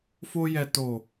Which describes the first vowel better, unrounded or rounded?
rounded